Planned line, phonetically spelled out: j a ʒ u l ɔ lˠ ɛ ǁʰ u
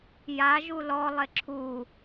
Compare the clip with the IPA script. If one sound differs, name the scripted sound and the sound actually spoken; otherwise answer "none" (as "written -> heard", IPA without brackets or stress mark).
ɛ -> e